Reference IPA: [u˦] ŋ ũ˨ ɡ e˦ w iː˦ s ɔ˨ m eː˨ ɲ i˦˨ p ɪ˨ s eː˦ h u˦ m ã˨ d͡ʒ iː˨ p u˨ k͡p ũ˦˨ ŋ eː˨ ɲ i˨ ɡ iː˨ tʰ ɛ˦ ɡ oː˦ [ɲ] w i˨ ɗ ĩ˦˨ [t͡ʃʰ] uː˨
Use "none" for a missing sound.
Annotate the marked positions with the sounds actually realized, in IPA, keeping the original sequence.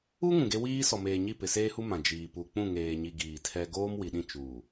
u˦, m, t͡ʃ

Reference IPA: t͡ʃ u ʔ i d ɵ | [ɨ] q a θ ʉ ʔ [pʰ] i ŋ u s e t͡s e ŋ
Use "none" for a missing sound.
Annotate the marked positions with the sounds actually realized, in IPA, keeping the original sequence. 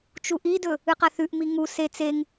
ɨ, m

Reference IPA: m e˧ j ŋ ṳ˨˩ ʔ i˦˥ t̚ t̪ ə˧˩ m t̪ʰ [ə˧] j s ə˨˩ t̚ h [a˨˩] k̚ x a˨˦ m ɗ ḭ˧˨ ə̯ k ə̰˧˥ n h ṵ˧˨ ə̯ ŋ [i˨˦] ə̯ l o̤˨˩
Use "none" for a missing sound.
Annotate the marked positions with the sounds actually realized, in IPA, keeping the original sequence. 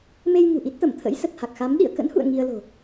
ə̰˧˥, a˨˩, i˧

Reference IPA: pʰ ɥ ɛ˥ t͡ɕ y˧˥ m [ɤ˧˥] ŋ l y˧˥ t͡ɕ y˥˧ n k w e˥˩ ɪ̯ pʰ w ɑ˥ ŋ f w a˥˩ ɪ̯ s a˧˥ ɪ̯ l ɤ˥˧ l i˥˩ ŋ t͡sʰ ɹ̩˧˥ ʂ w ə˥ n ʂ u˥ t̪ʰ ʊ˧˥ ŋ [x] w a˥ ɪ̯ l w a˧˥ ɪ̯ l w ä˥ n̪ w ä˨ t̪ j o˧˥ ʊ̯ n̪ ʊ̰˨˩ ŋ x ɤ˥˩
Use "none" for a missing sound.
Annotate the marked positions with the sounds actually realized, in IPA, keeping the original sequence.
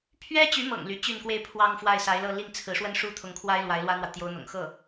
ɤ̰˨˩, kʰ

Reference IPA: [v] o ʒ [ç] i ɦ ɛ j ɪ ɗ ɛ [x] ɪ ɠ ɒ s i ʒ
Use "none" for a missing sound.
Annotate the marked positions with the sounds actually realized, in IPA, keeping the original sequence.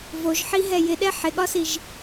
v, ħ, ħ

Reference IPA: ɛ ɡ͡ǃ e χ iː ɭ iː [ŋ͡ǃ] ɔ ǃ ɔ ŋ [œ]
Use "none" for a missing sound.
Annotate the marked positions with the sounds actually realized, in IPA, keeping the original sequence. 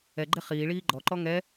ɡ͡ǃ, ɛ

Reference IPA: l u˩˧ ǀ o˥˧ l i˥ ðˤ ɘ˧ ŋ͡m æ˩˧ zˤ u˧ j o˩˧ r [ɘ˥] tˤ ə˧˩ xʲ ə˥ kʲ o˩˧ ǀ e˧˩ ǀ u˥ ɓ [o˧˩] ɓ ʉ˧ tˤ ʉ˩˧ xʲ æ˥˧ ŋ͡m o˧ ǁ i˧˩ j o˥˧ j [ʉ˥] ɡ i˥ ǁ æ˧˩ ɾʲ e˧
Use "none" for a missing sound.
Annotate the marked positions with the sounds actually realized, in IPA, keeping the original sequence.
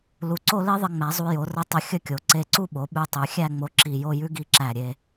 ɘ˧, o˩˧, ʉ˥

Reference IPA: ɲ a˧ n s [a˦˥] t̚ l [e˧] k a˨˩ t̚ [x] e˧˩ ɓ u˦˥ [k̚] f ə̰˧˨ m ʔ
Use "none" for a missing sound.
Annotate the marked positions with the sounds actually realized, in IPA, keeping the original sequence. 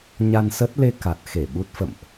ə˦˥, e˧, x, t̚

